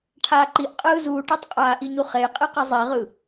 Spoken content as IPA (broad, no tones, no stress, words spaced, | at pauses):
ʈʰaːǃiʔ qʼɯːzuːʈetˤ qʼaːʔiɲuχej qʼiqizˤiʁɯ